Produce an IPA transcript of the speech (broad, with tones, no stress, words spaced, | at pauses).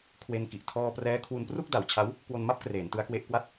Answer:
kʰwe˧nki˨˩ʔ tʰɔː˧ prɛː˦˥kʰwu˧npru˥˩k̚ da˩˦wt͡ɕʰa˦˥w | kwo˧nma˥˩p̚ kreː˩˦ntɯ˦˥a̯kwe˦˥ʔ kwa˦˥t̚